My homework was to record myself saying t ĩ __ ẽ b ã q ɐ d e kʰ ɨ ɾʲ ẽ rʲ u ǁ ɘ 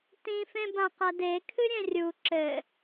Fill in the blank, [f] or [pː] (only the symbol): f